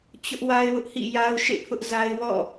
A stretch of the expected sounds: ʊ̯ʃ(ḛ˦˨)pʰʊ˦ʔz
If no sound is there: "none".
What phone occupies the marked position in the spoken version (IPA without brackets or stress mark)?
ḛ˦˨